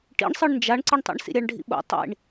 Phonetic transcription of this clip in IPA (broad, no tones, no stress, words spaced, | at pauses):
ʈḭɳsˤɯɳ nd͡ʒaɳǀɯɳtˤḭɳ sḭɾʲaɳɖʱḭɓo̰ tˤḭɳ